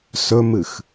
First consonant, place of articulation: alveolar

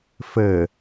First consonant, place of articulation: labial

